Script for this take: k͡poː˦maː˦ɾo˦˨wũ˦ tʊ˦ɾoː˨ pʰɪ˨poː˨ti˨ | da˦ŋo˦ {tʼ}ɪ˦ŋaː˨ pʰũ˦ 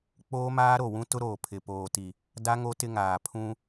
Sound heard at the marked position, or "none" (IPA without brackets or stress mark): t